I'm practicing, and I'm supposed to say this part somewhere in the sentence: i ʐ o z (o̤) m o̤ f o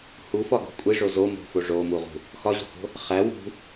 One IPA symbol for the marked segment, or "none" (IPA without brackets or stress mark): o